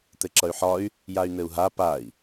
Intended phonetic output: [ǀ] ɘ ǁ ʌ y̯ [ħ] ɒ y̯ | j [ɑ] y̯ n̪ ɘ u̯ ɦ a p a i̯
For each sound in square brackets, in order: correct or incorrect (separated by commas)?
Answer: incorrect, correct, incorrect